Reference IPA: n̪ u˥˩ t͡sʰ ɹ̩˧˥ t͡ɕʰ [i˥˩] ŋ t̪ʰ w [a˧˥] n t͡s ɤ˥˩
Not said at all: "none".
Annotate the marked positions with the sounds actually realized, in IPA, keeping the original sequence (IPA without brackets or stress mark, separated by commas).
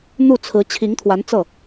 i˧˥, a˧˥